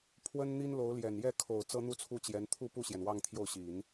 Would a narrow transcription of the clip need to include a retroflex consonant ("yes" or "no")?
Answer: no